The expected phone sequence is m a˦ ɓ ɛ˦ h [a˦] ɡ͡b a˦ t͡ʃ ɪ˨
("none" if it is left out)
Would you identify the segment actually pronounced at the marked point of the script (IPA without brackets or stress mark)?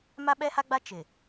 a˦